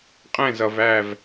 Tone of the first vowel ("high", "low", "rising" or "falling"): falling